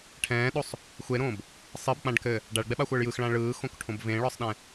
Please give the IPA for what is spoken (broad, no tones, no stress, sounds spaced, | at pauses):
ʈʰ ɛ̃ː ɗ o sˤ | xʷ e ɾ õː b | sˤ ɨ b k͡p ã ɖ k ɘ | ɖ a ɭ ɡ͡b ɛ ɓ a xʷ əː ɭ j ɯ x ɭ ã ɭ ɯː x õ k ʈʰ õ b v ẽ ɭ ɒ sˤ ɗ ɛ̃